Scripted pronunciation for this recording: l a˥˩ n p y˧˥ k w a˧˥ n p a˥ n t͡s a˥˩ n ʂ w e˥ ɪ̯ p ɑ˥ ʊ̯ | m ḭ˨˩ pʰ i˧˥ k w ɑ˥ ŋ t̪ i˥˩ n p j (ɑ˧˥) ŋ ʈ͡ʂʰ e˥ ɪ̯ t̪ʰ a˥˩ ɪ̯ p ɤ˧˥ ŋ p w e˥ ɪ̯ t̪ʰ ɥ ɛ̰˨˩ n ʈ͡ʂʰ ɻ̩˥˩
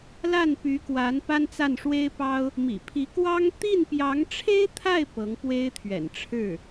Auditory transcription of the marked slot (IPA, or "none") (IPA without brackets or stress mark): ɑ˧˥